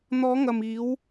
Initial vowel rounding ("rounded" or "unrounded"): rounded